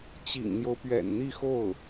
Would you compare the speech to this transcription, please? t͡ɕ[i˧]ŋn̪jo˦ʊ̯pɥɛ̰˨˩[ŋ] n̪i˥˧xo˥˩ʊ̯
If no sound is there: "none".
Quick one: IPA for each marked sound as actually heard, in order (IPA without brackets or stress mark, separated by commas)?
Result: ḭ˨˩, n